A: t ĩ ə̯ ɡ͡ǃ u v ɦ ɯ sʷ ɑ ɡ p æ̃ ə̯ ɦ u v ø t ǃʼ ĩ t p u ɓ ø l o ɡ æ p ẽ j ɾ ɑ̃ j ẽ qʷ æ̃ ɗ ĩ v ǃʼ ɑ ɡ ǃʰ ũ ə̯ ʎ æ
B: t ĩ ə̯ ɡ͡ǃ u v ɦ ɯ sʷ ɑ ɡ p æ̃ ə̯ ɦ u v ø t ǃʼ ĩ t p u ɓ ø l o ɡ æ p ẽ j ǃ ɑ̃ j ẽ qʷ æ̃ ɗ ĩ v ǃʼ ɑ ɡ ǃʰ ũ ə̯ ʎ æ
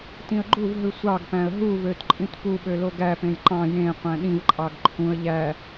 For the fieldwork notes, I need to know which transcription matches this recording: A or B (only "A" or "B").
B